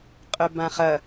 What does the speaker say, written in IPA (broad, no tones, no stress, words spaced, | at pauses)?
qʼœbãχɐ